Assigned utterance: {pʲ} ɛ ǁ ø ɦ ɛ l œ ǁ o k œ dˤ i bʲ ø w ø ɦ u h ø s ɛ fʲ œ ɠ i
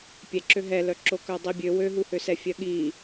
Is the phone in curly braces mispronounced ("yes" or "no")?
no